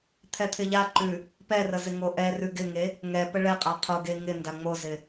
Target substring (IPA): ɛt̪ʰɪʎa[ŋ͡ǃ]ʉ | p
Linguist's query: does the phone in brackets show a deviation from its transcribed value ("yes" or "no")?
yes